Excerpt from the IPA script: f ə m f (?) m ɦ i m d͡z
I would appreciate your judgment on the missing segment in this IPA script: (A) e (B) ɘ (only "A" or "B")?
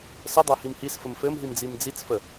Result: B